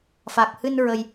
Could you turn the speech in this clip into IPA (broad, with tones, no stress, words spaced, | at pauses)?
fa˨˩k̚hɨ˧n ɹə˧j